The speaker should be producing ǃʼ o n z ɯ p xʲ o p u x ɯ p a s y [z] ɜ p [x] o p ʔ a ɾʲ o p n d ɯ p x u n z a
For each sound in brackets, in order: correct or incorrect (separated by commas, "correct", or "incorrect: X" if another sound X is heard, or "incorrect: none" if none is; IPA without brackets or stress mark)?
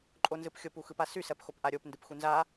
incorrect: s, correct